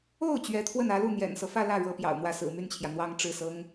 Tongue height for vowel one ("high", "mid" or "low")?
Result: mid